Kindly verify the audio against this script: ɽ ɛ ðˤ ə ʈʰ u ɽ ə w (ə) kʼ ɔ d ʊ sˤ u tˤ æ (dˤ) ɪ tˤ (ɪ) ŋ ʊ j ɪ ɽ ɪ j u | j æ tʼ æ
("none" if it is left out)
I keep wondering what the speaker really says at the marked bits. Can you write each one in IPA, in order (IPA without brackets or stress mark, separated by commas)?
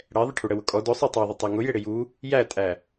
ʊ, ðˤ, ɛ